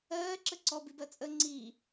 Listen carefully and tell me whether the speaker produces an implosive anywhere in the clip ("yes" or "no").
no